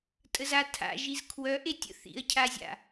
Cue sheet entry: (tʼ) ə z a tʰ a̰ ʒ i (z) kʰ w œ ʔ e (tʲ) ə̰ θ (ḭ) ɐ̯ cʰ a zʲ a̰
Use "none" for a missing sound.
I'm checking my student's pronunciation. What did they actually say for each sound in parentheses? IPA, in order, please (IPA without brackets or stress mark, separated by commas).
tʼ, z, tʲ, ḭ